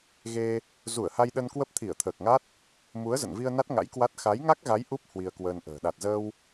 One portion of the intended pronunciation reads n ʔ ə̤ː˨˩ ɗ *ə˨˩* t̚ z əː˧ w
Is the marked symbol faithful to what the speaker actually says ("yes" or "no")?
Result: no